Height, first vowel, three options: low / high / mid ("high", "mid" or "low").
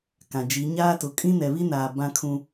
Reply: low